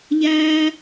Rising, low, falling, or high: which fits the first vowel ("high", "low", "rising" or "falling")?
high